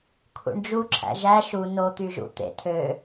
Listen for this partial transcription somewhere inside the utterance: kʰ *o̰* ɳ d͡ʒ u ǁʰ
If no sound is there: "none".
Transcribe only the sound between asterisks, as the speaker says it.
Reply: ṵ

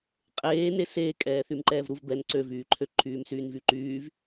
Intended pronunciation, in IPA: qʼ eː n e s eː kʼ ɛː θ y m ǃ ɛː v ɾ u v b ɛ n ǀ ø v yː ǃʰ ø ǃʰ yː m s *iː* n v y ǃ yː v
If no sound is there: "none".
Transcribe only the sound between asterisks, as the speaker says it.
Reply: yː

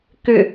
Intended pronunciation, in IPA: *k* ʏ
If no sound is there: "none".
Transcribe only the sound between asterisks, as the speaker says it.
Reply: k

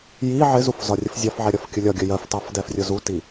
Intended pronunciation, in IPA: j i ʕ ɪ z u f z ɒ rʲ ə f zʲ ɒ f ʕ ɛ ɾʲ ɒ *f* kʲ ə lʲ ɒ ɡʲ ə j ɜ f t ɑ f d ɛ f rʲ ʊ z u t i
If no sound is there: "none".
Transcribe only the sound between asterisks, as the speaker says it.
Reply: f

